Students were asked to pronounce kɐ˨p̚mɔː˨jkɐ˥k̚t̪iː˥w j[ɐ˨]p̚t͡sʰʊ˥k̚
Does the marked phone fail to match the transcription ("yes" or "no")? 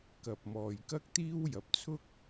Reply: no